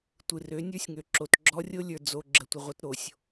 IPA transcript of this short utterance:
tʷ ɨ˨ r ø˨˦ nʲ ə˞˦ sʲ ŋ ø˨ ǁ o˨ t ɡ͡ǁ ɔ˦ rʲ o˦ lʲ ə˞˨ d͡z o˨ ɡ͡ǁ ə˨ tʷ ə˨ ʁʷ ə˦ t ɾ o˨ sʲ

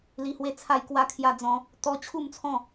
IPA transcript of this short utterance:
l i˦ h w e˥˧ t͡sʰ a˥˧ j k w a˥˧ kʰ j a˦ d͡z ɔ̃˦ | t̪ ɔ˦ t͡ɕʰ u˥˧ m t͡sʰ ɔ̃˥˧

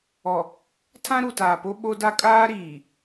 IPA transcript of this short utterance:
ɔ˨ | tʰ ã˦ ɾ u˨ t aː˨ p o˦ ɓ o˦ d a˦ kʼ aː˦ ɾ iː˨

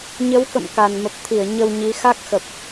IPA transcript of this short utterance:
ɲ ə˨˦ w k ə̰˧˨ m k a˨˩ n m ə˨˩ p̚ t̪ʰ i˧˩ ə̯ ɲ ə˧ w ɲ i˨˦ x a˦˥ k̚ x ə˨˩ p̚

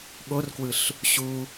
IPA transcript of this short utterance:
ɠ o r k w ɯ ɬ | ɕ u

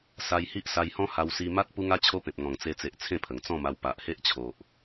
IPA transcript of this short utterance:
s a˧ j h i˦ ʔ s a˧ j h ɔ̃˦ h a˧ w s i˧ m a˦ t̚ p u˦ ŋ a˦ t͡ɕʰ o˦ p ẽ˨ p̚ ŋ ɔ̃˨˩ ŋ t͡s e˧ t͡s e˨ ʔ t͡sʰ ẽ˥˧ pʰ ə˨˩ ŋ t͡s ɔ̃˥˧ m a˧ w p a˨ ʔ h e˦ ʔ t͡ɕʰ o˨ ʔ

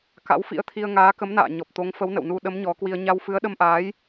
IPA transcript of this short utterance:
k a̰˧˥ w f ḭ˧˥ ə̯ t̪ʰ i˧ ə̯ ŋ aː˨˦ k ə˨˦ m n a̰ː˧˨ ɲ ɔ˨˩ p̚ t̪ o˨˦ ŋ f ə˨˦ w n ə̰˧˨ w n u˧ ɗ ə˨˦ m ɲ ɔ˨˦ k w i˧ ə̯ ɲ a˧ w f ɨ˨˦ ə̯ ɗ ə˧ m ʔ aː˨˦ j

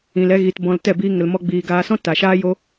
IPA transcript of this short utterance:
ĩ˨ l ɛ˧ ɣ iː˨ t b ɔ̃˧ l t ɛ˦˨ b iː˧ ŋ ə˨ l m ɔ˧ ɡ͡b iː˨ ɡ aː˧ s ɔ̃˦ t a˨ ʃ aː˦ j o˦

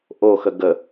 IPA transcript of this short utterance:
ʔ o x ə ɡ ə

